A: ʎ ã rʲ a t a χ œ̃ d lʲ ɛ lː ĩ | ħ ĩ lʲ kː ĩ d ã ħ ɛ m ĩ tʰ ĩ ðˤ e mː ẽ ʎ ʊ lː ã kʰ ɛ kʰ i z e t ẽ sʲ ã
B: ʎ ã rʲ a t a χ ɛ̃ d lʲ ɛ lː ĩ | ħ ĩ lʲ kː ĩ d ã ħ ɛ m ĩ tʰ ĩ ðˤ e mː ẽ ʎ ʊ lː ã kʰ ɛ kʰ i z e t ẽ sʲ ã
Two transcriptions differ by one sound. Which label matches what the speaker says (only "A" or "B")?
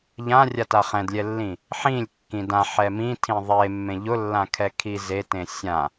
B